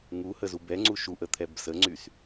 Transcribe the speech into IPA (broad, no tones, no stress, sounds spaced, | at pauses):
ŋ u h ə z u b ɛ ŋ͡ǀ u ʃ u ʔ ə t̪ʰ ɛ b s ə ŋ͡ǀ y s